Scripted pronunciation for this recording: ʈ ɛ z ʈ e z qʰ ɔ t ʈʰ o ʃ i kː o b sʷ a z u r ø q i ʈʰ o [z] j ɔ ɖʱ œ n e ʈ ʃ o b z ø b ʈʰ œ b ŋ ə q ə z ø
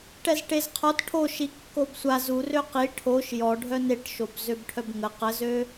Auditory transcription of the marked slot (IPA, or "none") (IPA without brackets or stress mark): ʃ